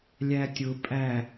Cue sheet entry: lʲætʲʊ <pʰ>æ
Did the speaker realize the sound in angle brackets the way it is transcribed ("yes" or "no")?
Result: no